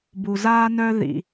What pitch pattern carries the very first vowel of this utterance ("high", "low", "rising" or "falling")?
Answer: low